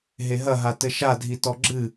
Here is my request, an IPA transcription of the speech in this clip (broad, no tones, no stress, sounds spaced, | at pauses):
ɦ e ɦ ɐ ɦ a t ɘ ʃ a dʱ i t ɔ ɡ͡ǁ ɨ